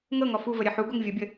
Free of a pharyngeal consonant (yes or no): no